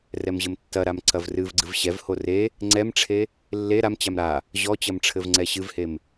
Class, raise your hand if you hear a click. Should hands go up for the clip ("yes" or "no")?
yes